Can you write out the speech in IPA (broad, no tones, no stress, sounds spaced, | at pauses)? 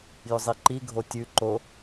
j ʏ zˤ i ǃ i ɡʱ o tʲ ʉ ǃ o